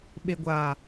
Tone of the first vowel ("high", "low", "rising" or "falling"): low